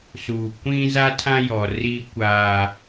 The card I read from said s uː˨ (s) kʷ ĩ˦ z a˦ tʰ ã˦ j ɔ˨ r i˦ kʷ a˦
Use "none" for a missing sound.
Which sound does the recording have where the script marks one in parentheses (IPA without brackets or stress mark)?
none